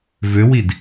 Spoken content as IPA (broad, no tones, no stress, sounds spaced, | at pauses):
v ø w i d